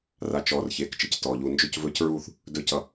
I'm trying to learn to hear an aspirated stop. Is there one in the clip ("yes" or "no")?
no